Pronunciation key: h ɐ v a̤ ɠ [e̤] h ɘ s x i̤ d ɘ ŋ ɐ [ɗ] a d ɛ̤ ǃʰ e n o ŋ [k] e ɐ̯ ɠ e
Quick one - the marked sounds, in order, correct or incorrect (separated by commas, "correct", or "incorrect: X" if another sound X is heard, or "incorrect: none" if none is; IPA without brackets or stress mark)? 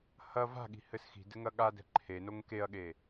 incorrect: i̤, incorrect: ɠ, correct